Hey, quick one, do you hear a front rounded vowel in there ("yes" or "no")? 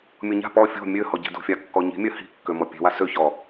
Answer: yes